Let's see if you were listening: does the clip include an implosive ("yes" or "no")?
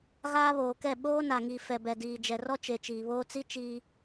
yes